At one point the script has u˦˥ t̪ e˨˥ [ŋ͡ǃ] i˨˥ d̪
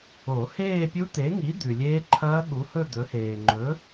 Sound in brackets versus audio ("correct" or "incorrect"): incorrect